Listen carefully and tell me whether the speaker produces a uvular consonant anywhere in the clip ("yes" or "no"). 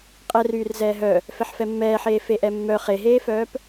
yes